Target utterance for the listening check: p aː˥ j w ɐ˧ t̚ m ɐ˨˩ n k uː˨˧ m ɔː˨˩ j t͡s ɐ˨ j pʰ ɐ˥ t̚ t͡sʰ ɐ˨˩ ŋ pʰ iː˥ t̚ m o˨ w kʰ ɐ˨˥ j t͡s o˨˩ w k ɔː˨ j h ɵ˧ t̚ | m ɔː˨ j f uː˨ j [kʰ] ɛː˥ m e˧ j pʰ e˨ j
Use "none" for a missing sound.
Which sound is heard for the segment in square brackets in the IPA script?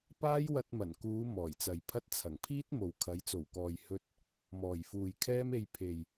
kʰ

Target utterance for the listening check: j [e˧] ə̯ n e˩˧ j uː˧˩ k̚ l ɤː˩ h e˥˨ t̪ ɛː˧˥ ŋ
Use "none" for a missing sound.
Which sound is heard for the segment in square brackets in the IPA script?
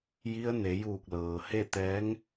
i˧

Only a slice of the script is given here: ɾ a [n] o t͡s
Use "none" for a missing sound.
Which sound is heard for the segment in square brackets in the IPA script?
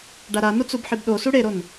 n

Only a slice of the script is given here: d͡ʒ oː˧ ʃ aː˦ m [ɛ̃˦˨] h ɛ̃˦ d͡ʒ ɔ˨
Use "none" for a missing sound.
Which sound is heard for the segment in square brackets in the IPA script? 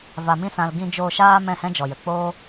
ɛ̃˦˨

